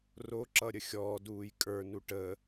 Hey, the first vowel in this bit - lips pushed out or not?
yes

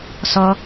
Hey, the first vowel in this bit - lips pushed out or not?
yes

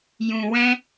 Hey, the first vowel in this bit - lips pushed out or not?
yes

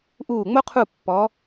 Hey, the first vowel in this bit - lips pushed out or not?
yes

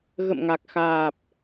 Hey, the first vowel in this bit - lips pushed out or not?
no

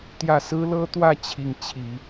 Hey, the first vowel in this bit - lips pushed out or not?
no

